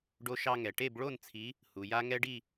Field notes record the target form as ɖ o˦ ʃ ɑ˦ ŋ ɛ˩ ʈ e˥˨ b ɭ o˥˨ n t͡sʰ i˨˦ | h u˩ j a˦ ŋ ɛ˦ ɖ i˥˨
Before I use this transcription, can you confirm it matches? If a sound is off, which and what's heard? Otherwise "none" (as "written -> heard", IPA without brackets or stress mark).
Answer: none